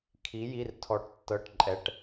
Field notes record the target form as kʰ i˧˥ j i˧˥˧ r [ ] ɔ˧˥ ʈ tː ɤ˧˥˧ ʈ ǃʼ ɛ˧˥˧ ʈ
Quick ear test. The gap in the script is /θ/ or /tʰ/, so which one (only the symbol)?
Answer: tʰ